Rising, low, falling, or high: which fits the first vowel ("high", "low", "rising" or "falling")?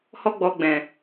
high